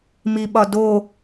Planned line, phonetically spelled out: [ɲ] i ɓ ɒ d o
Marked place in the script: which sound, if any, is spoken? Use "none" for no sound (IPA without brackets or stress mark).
m